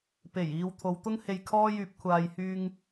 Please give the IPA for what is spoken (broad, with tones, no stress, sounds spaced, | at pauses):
p e˨˩ j iː˨ w t̪ʰ o˨˧ w t̪ ʊ˥ ŋ h e˧ j kʰ ɔː˥ j yː˧ p̚ kʷʰ aː˨ j h yː˧ ŋ